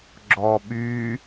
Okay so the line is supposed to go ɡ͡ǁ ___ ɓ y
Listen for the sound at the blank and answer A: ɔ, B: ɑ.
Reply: A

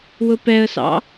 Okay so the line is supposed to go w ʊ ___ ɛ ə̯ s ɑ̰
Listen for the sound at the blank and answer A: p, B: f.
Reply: A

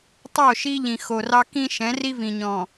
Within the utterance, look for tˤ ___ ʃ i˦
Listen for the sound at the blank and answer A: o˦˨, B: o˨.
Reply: A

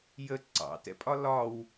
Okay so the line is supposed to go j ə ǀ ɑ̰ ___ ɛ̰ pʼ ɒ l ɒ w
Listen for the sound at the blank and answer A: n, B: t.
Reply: B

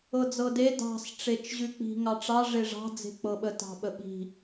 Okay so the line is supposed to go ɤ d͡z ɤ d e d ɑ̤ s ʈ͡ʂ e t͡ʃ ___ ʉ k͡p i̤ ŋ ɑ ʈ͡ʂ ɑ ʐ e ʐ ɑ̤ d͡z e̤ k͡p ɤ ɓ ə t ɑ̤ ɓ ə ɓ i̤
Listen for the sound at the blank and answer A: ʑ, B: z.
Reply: A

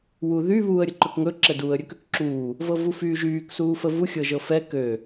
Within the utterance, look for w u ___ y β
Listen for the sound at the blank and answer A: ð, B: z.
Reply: A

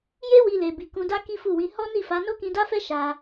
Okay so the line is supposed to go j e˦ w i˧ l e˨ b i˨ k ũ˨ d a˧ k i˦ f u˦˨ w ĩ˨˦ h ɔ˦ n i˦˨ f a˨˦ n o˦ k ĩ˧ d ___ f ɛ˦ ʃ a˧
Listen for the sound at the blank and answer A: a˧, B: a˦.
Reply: B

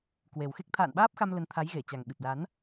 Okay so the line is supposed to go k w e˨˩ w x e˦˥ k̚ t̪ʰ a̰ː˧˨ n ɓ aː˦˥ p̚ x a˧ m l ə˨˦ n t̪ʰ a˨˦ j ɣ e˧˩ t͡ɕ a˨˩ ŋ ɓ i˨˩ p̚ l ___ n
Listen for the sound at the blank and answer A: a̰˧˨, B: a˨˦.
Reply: B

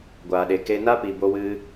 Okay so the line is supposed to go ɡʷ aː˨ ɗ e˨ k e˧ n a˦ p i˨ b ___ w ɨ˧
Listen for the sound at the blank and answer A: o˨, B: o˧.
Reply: B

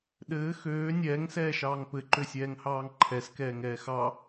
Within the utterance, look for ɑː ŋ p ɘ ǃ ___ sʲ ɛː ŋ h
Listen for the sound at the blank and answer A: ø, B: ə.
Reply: A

